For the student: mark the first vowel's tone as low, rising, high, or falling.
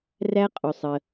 high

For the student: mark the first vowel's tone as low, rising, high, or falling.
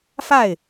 falling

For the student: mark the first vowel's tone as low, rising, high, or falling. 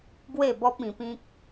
falling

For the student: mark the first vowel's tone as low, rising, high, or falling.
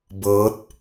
rising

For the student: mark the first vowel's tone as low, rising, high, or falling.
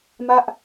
falling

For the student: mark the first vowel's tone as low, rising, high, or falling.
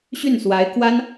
falling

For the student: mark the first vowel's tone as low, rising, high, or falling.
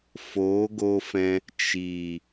rising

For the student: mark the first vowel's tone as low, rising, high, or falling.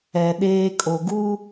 low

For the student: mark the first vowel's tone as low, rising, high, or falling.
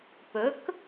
rising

